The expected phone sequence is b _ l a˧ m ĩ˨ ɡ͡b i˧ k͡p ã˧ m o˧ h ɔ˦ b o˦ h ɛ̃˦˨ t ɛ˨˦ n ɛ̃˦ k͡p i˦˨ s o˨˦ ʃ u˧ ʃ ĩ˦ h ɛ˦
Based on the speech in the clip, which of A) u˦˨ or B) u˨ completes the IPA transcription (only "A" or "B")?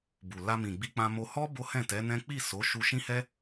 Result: B